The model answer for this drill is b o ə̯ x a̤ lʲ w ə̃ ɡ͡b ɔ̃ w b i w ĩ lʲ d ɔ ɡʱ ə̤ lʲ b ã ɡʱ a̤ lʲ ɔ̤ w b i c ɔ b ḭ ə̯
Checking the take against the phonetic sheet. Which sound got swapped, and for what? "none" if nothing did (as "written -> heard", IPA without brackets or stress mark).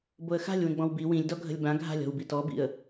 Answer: c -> t